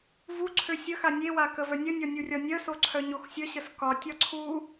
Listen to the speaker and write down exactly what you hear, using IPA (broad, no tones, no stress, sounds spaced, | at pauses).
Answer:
v u ǀʰ ø sʲ ə x a nʲ e w a k ə v œ nʲ ə nʲ ɒ nʲ u rʲ ɒ nʲ œ s o ǀʰ œ ɲ o x sʲ ə ɕ ə s k ɒ tʲ ɒ ǀʰ u